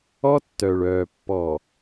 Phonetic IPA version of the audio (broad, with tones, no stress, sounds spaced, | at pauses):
ɔ˦ tː œ˨ ɭ œː˨ pː ɔ˨